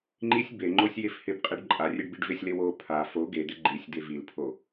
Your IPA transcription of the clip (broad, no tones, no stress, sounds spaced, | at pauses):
ŋ͡ǃ i sʲ b e ŋ͡ǃ o sʲ j e f h ɪ b qʼ e ɖ ǃʼ a rʲ e ɖ b i ɖ v ɪ sʲ l e w o pʰ a f o ɡ e d̪ ɪ ɡ͡ǃ i sʲ d̪ e v i l pʰ o